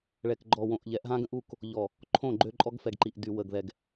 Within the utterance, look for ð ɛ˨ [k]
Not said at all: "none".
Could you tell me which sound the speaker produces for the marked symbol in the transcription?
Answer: ɡ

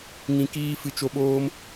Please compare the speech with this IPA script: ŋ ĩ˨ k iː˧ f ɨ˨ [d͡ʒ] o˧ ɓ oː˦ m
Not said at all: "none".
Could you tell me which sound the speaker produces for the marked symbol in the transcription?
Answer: t͡ʃ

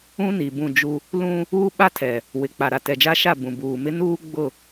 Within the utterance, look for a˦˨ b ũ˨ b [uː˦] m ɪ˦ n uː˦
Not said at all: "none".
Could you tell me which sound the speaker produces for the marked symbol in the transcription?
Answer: uː˨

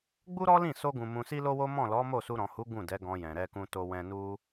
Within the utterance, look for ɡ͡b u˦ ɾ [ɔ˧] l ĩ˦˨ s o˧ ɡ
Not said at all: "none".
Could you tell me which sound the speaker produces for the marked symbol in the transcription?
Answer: ɔ˦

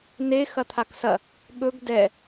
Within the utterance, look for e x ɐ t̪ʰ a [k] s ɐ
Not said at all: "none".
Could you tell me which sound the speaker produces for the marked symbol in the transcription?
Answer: k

